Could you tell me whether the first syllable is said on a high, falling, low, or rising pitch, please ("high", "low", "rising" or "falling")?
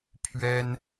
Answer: high